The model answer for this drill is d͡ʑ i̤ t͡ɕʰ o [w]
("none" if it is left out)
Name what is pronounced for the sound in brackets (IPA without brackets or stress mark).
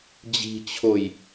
j